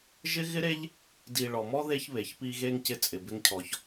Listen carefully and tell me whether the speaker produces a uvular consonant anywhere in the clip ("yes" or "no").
no